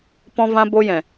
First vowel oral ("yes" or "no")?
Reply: no